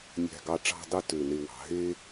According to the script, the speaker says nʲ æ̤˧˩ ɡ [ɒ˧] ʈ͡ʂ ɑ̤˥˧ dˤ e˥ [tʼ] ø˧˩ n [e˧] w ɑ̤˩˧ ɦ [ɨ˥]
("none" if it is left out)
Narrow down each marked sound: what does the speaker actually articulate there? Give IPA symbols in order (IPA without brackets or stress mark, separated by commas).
ɑ˧, t, e˧, e˥